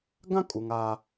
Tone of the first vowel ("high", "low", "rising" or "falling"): high